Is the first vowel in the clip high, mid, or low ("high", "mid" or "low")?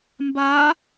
low